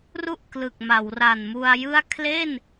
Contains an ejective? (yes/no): no